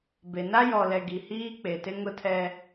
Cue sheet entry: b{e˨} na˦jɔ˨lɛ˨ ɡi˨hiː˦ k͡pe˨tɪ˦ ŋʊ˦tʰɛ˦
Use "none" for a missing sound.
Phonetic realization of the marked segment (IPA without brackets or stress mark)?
e˨